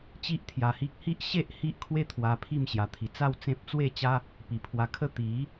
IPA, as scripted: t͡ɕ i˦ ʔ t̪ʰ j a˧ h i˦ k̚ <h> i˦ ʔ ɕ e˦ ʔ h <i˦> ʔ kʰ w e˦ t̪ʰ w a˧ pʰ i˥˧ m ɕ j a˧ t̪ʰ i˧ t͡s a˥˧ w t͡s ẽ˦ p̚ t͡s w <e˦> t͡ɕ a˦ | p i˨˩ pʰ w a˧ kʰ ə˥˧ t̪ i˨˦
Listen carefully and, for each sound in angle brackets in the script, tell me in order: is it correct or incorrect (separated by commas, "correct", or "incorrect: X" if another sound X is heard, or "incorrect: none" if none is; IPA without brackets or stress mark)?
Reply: correct, correct, incorrect: e˥˧